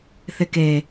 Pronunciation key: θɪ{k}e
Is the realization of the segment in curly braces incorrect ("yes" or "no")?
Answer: no